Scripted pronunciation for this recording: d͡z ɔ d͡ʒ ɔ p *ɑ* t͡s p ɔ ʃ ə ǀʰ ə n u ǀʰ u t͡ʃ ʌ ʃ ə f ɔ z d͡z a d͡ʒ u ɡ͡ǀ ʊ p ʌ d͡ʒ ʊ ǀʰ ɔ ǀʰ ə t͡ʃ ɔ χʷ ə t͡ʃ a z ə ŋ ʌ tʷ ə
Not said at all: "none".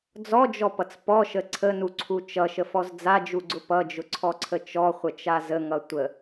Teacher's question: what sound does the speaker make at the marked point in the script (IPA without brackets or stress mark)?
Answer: ʌ